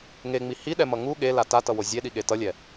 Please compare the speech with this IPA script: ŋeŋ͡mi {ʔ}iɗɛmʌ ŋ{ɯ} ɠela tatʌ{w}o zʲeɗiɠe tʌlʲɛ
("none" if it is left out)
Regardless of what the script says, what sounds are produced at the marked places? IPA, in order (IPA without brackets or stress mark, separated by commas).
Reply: h, u, w